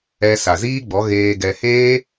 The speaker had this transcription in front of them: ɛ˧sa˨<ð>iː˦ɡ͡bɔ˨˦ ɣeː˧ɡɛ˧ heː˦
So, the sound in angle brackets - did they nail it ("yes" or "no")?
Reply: no